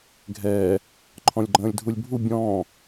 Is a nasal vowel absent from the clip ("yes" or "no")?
no